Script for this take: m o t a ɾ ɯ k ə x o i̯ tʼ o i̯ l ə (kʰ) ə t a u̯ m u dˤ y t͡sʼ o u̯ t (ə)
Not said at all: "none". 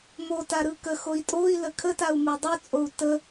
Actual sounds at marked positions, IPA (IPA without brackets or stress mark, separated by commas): kʰ, ə